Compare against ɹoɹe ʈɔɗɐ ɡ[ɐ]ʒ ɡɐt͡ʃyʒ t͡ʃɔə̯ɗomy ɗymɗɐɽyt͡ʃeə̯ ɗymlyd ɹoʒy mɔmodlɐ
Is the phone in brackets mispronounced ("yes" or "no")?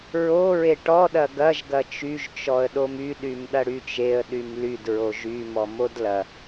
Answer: no